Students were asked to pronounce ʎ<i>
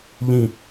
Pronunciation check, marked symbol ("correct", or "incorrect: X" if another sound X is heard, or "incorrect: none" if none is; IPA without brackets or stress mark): incorrect: ĩ